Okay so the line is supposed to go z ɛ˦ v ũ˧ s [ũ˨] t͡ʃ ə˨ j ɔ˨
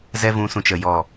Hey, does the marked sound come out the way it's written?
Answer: yes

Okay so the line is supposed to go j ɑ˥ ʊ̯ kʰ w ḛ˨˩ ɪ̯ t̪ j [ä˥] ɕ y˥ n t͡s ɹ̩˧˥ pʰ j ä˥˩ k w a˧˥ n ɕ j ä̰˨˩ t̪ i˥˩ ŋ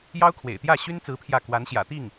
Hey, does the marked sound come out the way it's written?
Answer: no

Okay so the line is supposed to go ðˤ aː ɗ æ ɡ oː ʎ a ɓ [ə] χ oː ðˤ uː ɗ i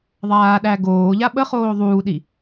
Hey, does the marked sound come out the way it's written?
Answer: yes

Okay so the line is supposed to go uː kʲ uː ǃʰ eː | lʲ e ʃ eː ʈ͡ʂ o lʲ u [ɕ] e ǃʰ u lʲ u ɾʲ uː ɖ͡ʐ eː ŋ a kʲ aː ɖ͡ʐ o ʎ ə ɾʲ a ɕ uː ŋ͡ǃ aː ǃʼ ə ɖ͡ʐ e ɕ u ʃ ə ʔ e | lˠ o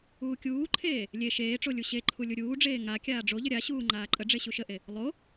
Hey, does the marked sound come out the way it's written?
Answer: yes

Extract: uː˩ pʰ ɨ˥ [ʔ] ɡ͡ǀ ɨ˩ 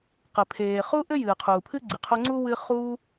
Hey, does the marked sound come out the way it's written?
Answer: no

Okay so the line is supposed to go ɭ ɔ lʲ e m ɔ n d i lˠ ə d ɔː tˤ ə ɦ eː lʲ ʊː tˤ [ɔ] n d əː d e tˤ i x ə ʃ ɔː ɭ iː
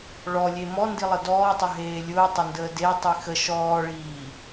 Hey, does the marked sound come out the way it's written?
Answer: no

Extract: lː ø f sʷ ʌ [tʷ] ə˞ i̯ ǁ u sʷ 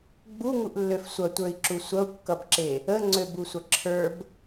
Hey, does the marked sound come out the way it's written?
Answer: yes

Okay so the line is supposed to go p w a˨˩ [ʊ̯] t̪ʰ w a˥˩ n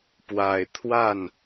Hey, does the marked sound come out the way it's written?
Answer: no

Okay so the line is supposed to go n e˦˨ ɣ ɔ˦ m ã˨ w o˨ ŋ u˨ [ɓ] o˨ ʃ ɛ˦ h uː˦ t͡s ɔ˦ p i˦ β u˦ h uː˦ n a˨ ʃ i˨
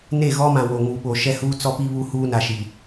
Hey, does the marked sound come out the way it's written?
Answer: yes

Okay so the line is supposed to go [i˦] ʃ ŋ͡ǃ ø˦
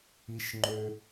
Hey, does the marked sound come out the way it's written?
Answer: yes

